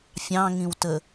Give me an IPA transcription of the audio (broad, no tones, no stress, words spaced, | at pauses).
fʲɑ̃ŋĩwtə